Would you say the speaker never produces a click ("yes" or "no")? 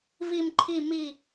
no